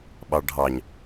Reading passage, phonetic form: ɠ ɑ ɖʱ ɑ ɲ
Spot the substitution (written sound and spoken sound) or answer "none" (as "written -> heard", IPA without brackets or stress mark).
ɠ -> ɓ